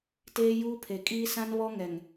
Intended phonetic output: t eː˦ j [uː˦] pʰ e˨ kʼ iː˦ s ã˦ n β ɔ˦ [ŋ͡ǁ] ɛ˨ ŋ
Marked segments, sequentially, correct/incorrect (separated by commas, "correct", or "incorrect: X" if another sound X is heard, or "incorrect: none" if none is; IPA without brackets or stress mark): correct, incorrect: ŋ